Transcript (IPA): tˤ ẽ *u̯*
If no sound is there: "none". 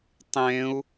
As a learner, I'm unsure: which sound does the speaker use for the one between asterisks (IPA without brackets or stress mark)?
u̯